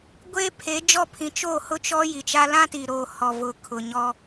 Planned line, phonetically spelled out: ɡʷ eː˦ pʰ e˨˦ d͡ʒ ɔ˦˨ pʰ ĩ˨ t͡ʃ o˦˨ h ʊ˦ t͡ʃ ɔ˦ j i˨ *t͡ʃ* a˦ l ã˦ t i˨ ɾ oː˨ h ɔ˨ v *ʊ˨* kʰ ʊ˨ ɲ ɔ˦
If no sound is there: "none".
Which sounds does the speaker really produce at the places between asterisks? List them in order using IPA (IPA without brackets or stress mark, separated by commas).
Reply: t͡ʃ, ʊ˨